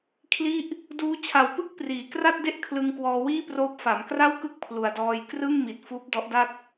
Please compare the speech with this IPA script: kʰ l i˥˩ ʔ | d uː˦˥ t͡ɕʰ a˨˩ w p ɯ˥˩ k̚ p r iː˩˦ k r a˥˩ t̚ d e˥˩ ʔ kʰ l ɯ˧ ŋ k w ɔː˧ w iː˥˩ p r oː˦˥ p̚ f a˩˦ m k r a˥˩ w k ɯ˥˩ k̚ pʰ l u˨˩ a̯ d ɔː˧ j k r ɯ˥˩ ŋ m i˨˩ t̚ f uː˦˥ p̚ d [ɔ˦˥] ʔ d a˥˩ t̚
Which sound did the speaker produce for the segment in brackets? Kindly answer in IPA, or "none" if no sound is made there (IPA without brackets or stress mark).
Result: ɔ˦˥